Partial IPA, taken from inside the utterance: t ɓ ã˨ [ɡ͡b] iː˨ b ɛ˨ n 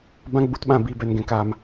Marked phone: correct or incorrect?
incorrect